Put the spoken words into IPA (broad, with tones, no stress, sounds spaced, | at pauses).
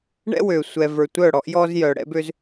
ɳ ɛ̰˦ w ø˨ sʷ ɛ˨ v ə˞˨ tʷ œ˦˨ ɽ ɔ˦ ʔ j ɔ˦ z j œ˨ ɽ ɛ̰˦ b ø˦ z